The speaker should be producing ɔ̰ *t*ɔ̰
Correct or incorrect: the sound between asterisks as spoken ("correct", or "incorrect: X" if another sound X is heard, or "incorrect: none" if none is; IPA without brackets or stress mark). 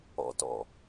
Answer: correct